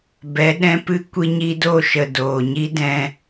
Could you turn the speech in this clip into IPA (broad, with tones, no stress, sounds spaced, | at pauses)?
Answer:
b ɛ˨˦ ɗ ɛ̃˦ p ɨ˦ kʷ i˧ ɲ i˧ d o˦˨ ʃ ə˨ d oː˨ ɲ i˦ d ɛ̃˧